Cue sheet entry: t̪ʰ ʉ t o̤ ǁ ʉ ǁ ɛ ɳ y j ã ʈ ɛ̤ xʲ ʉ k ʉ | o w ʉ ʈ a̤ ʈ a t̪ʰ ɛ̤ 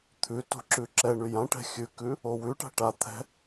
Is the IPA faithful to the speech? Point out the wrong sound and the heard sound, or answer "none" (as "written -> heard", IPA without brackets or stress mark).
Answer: none